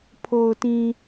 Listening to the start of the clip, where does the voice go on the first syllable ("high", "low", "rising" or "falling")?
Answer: low